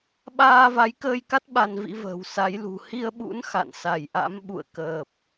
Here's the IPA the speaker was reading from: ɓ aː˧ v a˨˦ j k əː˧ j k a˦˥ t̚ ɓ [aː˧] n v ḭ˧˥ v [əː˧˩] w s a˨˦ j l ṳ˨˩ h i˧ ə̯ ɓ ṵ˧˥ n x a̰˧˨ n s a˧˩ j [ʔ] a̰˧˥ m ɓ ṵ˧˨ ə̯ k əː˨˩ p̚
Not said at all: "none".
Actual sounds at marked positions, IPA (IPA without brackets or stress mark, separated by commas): a˧, ə̤ː˨˩, ʔ